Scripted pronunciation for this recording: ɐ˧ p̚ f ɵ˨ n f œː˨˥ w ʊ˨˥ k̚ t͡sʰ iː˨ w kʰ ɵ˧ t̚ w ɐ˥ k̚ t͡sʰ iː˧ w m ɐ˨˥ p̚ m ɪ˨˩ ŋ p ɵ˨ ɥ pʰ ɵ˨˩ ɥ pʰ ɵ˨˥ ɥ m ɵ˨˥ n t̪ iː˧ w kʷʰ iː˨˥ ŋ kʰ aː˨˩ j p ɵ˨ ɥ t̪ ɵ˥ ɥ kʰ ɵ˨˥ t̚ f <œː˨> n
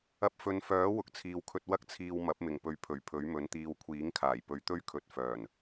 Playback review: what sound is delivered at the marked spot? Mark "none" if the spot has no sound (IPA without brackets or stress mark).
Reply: œː˨˩